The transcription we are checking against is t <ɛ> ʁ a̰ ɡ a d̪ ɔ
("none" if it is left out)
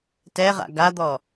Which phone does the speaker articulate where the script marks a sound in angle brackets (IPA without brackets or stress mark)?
ɛ